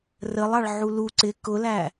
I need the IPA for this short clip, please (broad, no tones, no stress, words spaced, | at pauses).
rəlˠɑɭ ʕulu ǀɪ kʊlæ